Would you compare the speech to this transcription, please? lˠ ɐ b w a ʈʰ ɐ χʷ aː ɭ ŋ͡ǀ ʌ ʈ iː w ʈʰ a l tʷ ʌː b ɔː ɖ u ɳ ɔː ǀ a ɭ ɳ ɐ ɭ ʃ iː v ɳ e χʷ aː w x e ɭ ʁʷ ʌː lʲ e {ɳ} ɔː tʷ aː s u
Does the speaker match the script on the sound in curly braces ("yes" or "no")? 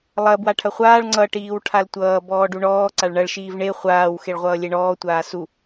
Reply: yes